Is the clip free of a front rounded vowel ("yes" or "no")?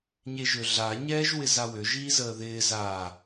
no